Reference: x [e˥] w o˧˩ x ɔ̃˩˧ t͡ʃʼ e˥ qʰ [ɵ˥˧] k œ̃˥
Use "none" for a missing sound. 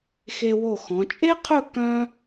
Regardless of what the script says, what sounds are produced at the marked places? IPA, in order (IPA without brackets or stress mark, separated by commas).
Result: e˧, ɵ˥˧